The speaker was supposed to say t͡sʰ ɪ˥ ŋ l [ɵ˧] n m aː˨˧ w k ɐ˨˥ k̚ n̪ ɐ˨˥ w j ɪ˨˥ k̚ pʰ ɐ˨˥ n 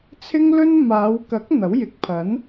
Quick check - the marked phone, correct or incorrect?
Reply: incorrect